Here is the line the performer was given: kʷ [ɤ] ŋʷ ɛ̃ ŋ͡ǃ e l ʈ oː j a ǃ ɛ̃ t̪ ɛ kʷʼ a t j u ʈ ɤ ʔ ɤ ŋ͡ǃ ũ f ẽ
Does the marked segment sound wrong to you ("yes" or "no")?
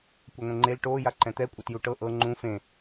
no